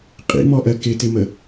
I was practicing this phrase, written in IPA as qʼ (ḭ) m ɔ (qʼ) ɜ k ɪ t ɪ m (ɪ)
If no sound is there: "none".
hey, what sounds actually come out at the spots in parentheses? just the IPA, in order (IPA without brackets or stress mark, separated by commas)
ḭ, ʔ, ə